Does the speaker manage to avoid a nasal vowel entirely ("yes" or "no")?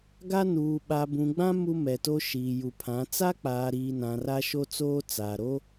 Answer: no